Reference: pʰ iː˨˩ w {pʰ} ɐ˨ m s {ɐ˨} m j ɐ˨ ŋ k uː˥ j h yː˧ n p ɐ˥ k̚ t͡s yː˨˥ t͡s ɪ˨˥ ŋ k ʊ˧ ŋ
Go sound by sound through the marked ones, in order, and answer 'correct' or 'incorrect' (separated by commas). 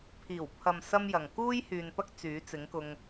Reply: correct, incorrect